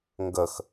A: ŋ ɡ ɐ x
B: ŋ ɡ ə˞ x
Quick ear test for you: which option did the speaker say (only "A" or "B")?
A